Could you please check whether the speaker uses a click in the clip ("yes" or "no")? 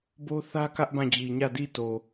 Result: no